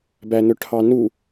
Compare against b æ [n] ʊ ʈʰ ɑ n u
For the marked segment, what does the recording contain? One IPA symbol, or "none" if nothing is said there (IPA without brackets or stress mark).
n